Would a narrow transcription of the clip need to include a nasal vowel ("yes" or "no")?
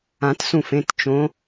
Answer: yes